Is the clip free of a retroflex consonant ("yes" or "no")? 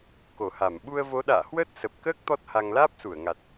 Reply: yes